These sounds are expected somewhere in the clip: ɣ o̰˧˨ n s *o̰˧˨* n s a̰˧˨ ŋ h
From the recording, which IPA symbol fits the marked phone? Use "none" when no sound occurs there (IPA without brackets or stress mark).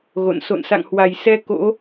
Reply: o̰˧˨